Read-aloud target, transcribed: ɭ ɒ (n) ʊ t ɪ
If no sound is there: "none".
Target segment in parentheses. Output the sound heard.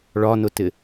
n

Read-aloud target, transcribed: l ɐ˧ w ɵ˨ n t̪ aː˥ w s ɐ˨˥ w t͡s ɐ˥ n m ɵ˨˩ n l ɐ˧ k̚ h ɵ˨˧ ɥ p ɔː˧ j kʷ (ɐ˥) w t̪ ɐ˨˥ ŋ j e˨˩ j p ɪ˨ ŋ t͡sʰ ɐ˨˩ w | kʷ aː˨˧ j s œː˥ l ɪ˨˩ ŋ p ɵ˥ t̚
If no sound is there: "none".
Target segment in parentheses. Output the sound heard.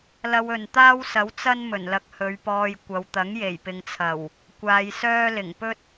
ɐ˨˧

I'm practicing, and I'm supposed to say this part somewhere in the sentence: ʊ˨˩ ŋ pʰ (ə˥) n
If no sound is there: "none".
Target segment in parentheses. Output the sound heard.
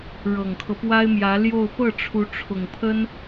ə˥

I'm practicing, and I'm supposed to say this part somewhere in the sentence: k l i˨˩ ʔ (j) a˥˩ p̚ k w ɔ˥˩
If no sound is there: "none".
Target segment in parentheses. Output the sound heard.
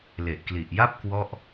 j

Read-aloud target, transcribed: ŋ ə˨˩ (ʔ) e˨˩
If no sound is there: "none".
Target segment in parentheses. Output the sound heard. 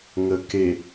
k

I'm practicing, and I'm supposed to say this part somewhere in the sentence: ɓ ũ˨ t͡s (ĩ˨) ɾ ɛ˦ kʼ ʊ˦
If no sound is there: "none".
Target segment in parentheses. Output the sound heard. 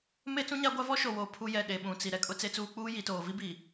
i˨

